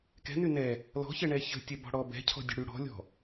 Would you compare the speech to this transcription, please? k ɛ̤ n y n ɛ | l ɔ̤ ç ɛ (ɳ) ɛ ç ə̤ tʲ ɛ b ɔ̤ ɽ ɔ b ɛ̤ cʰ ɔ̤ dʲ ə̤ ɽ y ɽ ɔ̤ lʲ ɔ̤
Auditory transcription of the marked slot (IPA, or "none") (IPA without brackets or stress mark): ɳ